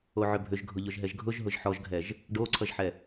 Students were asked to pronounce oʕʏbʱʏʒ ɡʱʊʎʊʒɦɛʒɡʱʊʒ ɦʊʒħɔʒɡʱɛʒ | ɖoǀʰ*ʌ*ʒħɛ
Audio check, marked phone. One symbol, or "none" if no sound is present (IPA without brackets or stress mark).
ʌ